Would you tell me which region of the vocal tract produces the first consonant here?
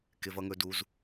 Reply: velum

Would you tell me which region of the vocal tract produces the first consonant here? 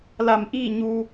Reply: tongue tip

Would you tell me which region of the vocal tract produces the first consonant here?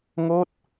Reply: velum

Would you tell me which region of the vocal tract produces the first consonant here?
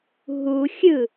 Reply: throat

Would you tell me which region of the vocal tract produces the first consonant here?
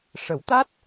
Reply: retroflex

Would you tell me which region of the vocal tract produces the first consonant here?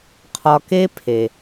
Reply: uvula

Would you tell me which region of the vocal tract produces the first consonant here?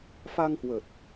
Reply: lips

